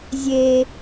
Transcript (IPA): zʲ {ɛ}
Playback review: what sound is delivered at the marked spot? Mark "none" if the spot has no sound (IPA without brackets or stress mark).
e